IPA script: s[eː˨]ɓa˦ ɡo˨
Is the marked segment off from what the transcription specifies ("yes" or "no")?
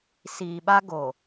yes